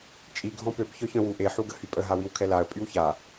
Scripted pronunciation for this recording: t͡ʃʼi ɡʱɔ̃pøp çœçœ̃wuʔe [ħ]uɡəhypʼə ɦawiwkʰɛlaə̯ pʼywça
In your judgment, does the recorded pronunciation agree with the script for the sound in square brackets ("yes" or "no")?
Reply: yes